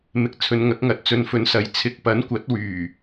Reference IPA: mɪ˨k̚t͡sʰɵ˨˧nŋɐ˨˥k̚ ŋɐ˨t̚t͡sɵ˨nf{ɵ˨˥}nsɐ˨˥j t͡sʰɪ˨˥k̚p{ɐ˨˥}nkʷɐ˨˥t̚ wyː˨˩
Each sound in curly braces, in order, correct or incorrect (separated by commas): correct, correct